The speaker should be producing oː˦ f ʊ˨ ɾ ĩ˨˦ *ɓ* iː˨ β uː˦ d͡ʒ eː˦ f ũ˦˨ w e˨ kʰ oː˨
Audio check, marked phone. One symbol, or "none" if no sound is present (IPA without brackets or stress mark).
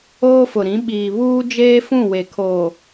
ɓ